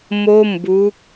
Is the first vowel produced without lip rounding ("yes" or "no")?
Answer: no